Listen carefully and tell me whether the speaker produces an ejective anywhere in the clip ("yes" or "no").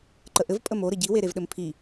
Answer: yes